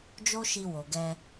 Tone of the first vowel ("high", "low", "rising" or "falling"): high